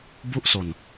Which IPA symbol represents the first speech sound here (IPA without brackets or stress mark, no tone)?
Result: b